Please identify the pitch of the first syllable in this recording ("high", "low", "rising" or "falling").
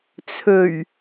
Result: low